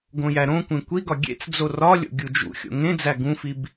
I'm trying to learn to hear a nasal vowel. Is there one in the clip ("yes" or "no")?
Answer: yes